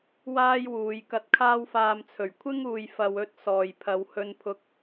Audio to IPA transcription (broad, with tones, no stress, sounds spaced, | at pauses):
w aː˥ j w uː˨˧ j k ɐ˧ t̚ kʰ aː˥ w f aː˧ m t͡sʰ ɵ˨˩ ɥ kʷʰ ɪ˥ ŋ uː˨ j f ɐ˨ w ɵ˨˥ t̚ s ɔː˨ j pʰ ɐ˨˧ w h ɵ˧ n pʰ ʊ˨˥ k̚